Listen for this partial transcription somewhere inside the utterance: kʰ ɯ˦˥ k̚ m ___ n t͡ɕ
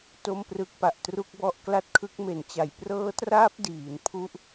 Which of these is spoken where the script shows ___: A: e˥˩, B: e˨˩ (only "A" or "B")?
B